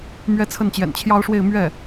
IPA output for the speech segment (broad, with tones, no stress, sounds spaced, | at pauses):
m ɥ ɛ˥ t͡sʰ ə˥˩ n t͡ɕ j ɛ̰˨˩ n t͡ɕʰ j ɑ˥ ʊ̯ ʂ w e˥˧ ɪ̯ m ɥ ɛ˥˩